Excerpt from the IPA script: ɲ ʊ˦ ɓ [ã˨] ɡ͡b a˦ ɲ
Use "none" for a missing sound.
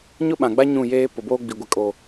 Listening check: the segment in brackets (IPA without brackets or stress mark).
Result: ã˨